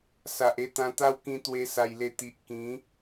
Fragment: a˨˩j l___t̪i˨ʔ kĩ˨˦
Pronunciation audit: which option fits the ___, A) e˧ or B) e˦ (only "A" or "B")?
A